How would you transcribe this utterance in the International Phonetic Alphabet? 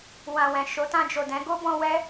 w ã˨ w ɛ̃˨ ʃ o˨˦ t ã˧ d͡ʒ o˨ d ɛ̃˨˦ ɡ o˦ b ɔ̃˧ w ɛ˦

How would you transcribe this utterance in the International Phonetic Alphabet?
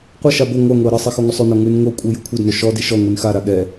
qʷ ɤ ʃ a b o ŋʷ a ŋʷ ɛ ɐ̯ ɾ ɤ sˤ i x ɔ ŋʷ ɛ sˤ ʉ n ɔ ŋ ʉ n ŋ o kʷʼ e j ʉ kʷʰ ɛ d n o ʃ ɔ d i ʃ ɔ ŋʷ i n x a ɾ a ɠ ɛ

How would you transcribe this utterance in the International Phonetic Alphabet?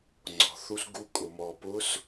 ŋ͡ǀ ɔ̤˩ θ u˧ s ɡ u˧ kʼ ʊ˩ m ɔ˩ p ʊ˧˥ s

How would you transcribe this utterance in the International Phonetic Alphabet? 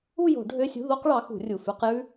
u˥˧ j o̤˨˩˦ ɖʱ ø˧˥˧ sʲ ṳ˧˥˧ ð o˥ q ɭ ɑ˨˥ x ṳ˨˩˦ rʲ u˨˩ f ʉ˧˥˧ q j ʉ˥

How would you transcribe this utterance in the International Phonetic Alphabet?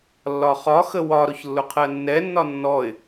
lː ɒ χ ɒ x ə w ɒ ɾ ʊ ç lː ʊ qʰ ɜ nː ɛ nː ɒ nː ɔ ɪ̯

